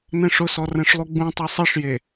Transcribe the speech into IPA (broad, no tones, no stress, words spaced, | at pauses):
nɛ̃ʂʊsɔ rɛ̃ʂlˠuɡ͡bũtˤi sˤiʂje